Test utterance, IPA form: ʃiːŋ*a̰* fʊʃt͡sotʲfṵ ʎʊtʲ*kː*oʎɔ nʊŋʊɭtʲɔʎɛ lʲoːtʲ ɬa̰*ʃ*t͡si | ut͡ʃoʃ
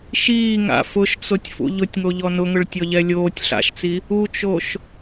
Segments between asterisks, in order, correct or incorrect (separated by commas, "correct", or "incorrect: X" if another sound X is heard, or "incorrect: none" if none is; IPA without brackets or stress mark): correct, incorrect: ŋ, correct